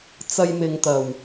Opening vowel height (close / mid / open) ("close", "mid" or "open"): open